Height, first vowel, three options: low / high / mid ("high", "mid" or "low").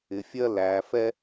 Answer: high